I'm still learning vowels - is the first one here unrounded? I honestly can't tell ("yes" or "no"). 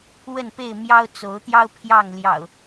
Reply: yes